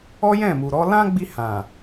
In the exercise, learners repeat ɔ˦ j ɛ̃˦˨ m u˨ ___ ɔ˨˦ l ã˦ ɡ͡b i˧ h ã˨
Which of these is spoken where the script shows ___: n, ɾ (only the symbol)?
ɾ